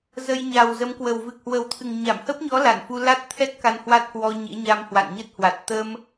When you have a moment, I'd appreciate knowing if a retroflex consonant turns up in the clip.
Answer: no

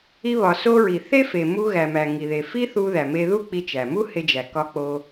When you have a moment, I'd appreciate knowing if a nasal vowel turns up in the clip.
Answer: no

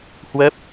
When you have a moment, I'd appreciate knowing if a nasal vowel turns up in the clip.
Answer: no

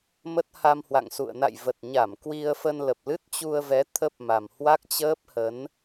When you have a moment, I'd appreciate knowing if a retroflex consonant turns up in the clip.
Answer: no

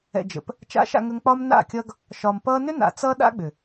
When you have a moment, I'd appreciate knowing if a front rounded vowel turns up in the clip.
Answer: yes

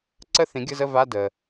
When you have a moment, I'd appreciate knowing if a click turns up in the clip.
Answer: yes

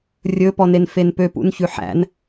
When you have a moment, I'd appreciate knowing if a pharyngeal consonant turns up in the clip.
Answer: yes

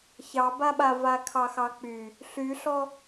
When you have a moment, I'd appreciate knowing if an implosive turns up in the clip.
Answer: yes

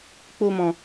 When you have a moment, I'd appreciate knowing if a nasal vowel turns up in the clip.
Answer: yes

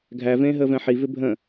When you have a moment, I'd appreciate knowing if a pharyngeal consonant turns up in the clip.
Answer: yes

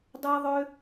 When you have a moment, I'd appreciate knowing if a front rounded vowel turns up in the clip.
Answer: yes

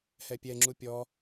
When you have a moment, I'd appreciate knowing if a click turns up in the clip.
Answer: yes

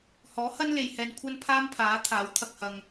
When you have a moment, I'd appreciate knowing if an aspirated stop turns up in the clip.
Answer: yes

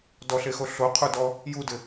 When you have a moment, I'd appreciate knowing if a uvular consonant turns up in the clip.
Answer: yes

